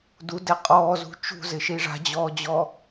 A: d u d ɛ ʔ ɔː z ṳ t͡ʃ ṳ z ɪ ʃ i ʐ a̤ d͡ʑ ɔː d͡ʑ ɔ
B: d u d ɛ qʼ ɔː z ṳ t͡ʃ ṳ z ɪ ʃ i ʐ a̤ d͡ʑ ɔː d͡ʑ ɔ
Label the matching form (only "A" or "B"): B